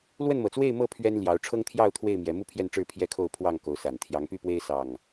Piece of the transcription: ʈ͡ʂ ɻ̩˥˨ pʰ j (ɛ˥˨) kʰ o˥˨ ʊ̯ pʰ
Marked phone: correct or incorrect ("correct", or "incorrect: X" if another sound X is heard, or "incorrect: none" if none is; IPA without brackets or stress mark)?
correct